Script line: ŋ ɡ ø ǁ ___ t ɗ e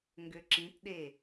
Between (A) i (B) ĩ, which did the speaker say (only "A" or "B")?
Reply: B